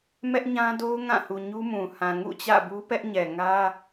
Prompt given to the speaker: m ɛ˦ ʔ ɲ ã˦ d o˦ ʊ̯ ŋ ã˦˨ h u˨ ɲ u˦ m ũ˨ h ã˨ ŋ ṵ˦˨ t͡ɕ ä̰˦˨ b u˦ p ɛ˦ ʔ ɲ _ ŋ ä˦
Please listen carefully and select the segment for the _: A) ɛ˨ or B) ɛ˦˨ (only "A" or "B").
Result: A